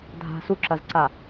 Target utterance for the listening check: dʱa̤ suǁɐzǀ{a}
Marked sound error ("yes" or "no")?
no